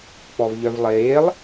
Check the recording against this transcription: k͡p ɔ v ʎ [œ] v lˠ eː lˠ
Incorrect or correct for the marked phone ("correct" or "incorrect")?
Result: correct